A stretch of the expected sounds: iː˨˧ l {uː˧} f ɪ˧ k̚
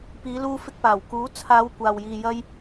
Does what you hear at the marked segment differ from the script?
no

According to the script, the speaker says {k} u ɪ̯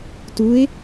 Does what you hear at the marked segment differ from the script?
yes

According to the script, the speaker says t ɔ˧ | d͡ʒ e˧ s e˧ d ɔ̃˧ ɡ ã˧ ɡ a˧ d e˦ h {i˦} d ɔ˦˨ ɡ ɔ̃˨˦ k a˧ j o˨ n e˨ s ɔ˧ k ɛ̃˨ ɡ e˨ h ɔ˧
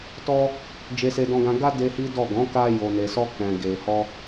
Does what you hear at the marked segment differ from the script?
no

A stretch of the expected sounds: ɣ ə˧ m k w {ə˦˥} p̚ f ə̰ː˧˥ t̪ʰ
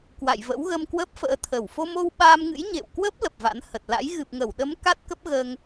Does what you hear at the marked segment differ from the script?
no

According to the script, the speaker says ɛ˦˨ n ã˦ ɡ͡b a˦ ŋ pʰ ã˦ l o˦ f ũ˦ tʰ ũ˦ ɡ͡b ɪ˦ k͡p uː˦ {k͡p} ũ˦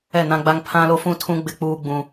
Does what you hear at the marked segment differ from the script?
yes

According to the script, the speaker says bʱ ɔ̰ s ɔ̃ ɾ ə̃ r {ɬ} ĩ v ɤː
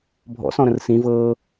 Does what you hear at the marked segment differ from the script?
yes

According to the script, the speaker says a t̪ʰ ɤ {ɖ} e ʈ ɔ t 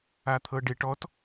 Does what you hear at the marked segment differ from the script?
no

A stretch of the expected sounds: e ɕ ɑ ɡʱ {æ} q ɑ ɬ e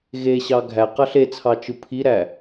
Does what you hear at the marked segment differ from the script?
no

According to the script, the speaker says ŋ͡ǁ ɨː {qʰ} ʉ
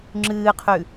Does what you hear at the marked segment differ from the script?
no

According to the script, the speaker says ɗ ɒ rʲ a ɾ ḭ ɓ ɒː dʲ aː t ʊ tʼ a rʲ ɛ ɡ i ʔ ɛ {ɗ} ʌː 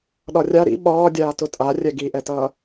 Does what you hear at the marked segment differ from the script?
yes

